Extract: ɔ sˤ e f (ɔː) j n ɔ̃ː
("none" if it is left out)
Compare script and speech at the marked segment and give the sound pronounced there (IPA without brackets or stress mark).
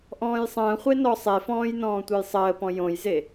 ɔ̃ː